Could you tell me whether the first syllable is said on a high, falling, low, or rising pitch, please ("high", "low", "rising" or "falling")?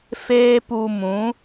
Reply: high